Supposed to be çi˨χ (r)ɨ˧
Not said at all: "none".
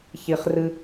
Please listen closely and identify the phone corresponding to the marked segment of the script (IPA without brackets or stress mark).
r